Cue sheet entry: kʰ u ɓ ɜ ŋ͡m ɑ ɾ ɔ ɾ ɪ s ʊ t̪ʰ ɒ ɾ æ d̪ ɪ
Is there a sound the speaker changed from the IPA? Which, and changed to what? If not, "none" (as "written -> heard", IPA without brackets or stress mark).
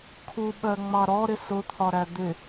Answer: none